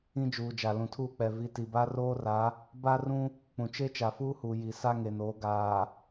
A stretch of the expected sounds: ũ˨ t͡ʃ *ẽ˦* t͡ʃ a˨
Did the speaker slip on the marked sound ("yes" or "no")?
yes